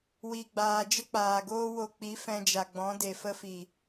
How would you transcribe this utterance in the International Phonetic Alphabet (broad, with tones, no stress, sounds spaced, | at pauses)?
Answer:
w i˨ ɡ͡b aː˨ d͡ʒ ə˦ k͡p aː˨ ɡ oː˦ w o˧ k͡p i˨˦ f ɛ̃˧ d͡ʒ a˨ ɡ͡b ɔ̃˨˦ d e˨ f ə˦ f i˨